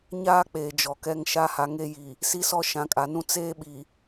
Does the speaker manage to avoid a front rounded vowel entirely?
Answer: yes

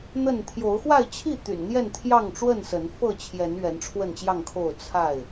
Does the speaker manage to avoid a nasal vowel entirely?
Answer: yes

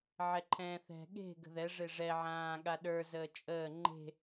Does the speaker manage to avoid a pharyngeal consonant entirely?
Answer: no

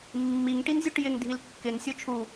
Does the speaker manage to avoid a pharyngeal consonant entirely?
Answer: yes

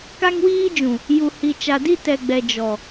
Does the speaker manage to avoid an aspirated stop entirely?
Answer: yes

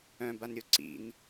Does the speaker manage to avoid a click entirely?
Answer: no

